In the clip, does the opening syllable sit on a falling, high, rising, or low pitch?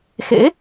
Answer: rising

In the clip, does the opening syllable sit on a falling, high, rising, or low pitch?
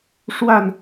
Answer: falling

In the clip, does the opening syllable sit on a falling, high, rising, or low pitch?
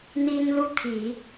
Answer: high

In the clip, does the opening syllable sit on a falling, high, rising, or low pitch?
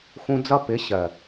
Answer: high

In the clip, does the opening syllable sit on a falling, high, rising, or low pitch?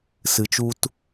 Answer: low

